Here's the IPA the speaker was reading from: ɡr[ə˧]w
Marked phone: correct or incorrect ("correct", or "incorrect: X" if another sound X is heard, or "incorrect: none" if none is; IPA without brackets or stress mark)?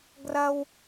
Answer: incorrect: ɐ˧